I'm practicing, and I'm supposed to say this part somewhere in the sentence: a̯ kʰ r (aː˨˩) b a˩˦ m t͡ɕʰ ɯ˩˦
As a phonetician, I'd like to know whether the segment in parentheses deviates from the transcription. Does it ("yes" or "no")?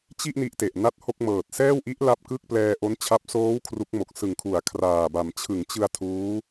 no